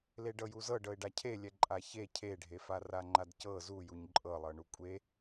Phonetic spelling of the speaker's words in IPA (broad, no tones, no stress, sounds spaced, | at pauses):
l e ɖ ɤ j u z ɤ ɖ ɤ ɪ̯ ɖ a cʰ e lʲ ɛ ǃʼ a ç e cʰ e ɖʱ e f a r a ŋ͡ǃ a d c ɤ z u j u ɲ ǃʼ ɤ lˠ ɤ ɳ u kʷʼ e